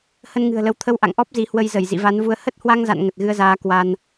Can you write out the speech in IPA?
h ə˧ n ŋ ɨ̤˨˩ ə̯ l ə˨˦ w t̪ʰ ə˧ w ʔ a̰˧˨ ŋ ʔ ɔ˦˥ p̚ z i˨˦ h w ə˧ j z ə˧˩ j z ḭ˧˨ v a˨˦ n v u˧ ə̯ h ə˦˥ t̚ h w a˧ ŋ z a̰˧˨ n ŋ ə˨˩ t̚ ɣ ɨ˧ ə̯ z aː˨˦ k w a˧ n

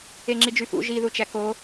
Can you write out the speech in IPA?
e ŋ͡ǁ i d͡ʒ y f ṵ ʒ i ð u t͡ʃ æ k o

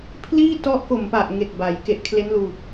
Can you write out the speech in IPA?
pʰ l iː˥˩ t ɔ˦˥ ʔ k o˨˩ m p a˨˩ ʔ ŋ e˨˩ k̚ b a˩˦ j k e˨˩ ʔ kʰ l e˦˥ n l uː˨˩ p̚

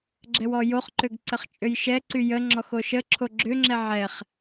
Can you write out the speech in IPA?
ɡ͡ǁ ɛ w ɔ j o χ ǃ ø ɡ ǀ ə χ t͡ʃʼ ø j ʃ ɛ ǀ y j ə ŋ͡ǁ ɔ x o ʃ ə ǁʰ o ɡ͡ǁ ø ŋ͡ǁ ɛ ʕ ɛ χ

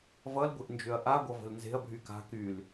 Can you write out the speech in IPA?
v ʌ l ɡʷ e̤ ʔ n d͡ʒ ø ɐ̯ ʔ a ɡʷ ʌ v ə̤ l n z e̤ ɐ̯ bʱ y k a̤ k y l

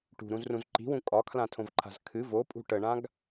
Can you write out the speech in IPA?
ʈ ṳ ɾ ũ z r ũ z ǃ i̤ w ũ kʼ ɒ kʰ l ã tʰ õ v ǃʰ a̤ z kʰ ɨ v o pʼ ṳ ʈ ə ɳ ã ɡ

